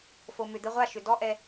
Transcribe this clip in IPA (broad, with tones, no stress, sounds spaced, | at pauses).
f o˨ m ʏ˨ d̪ ə˧ ʁʷ a˦˨ ʃ ʏ˨ d ɔ˦ ʔ ɛ˧